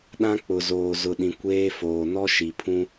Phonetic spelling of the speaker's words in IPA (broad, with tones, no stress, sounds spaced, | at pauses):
ɗ ã˦ k͡p ʊ˨ z oː˨ z ʊ˨ ɗ ĩ˨ kʷ eː˦ f oː˨ n ɔ˦ ʃ i˨ pʰ ũ˦